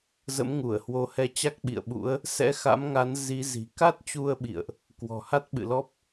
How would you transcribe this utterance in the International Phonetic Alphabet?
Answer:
zə̰˧˥mŋu˧˩ə̯hwo˨˦hɛ˧ t͡ɕa˦˥k̚ɓḭ˧˨ə̯ ɓṵ˧˥ə̯ | sɛ̰˧˥xa̰˧˥mŋa˨˦n zi˨˦zi̤˨˩ ka˦˥t̚t͡ɕu˧ə̯ɓḭ˧˨ə̯ʔ | kwɔ̤˨˩ha˦˥t̚ɓɨ̰˧˨lɔ˦˥p̚

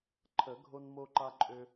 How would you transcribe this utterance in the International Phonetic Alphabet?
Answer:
ǃʰə˨˩˦ɡʱo˦nmo˦ǃa˦ ǃʼø˦

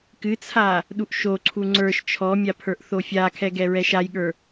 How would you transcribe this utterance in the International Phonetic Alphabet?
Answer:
kɨt͡sʰa | ɗuʔʃoǀʰu ŋ͡ǀə˞ʃ t͡ʃʰɔmʲa pʰə˞ʔθofʲakʰɛ ɡɛɹɛʃajɠə˞

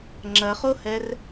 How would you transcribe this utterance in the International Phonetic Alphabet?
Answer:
ŋ͡ǁɐχohɛr

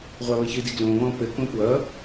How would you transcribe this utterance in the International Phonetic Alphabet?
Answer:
ʁʷɑβɘçɨdi ɡlõβɔ̃ pɘkõ pwʌ

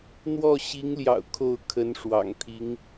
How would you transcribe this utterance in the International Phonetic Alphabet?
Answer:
n̪wɔ˥˩ɕi˧˥ŋljɑ̰˨˩ʊ̯ kʰo˥˩ʊ̯kʰə˧˥nʂwɑ̰˨˩ŋt̪ʰi˧˥ŋ

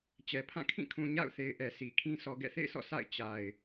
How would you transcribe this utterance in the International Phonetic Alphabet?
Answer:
t͡ɕɛ˨ pʰã˦˨kʰĩ˦˨kʰũ˨ ɲa̰˦˨ʊ̯θe˨ɪ̯ ʔɛ˨si˨kʰĩ˦ sɔ˨ɡɛ̰˦˨θḛ˦˨ɪ̯sɔ̰˦˨ sa̰˦˨ɪ̯ t͡ɕa˨ɪ̯

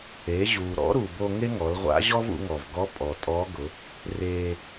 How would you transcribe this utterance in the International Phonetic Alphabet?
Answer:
eː˩˧ʑuː˩ɾɔ̰˧˥ ɾu˩bo˧ ŋe˥ŋɔ˩˧lʁʷa̰˧˥ ʑɔ˥vṵ˩˧ŋɔ˩vɡɔ˧˥ pʼɔ˩tʼɔː˧˥ɡʊ˩˧ | reː˧

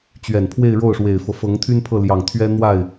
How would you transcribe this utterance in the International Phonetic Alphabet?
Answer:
t͡ɕɥɛ˨˩npʰwe˥˧ɪ̯ ɻo˥˩ʊ̯ʂwe˨˩ɪ̯fɤ˦fɤ˧˥ŋ t̪ʰy˥npʰɤ˥˩ljɑ˨˩ŋ t̪ʰɥɛ˥ n̪wa˥˩ɪ̯

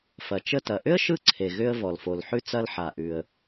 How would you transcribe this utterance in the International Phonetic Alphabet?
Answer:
fɐ˩ t͡ʃə˧tɐ˩ʔʏ˥ə̯ ʃɯ˥ǀʰe˩ ɣʏ˧ə̯ vɔ˩lfo˩lħʉ˧ t͡sɐ˧lħa˩ʔʉ˩ə̯

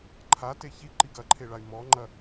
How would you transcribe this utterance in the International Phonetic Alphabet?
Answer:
ǃʰate çiǃiɡ ɐǃʰeɭay̯ mɔŋ͡ǃɐ

